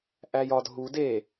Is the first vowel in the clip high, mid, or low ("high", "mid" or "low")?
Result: low